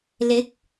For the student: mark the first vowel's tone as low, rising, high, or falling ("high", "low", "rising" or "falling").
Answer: rising